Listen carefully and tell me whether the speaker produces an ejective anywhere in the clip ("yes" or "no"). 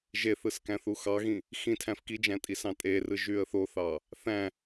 yes